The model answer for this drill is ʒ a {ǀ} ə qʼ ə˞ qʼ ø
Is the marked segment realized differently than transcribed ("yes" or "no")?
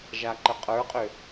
yes